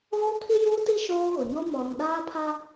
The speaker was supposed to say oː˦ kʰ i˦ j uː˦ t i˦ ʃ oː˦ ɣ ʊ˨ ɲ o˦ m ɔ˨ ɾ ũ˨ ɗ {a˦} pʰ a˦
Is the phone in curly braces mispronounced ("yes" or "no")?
yes